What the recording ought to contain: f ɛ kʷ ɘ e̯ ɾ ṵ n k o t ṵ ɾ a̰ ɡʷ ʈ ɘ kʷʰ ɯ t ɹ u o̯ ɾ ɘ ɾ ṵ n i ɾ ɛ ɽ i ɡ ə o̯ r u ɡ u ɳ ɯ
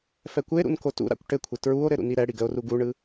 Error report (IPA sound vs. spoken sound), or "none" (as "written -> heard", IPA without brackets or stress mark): ɡʷ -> kʷ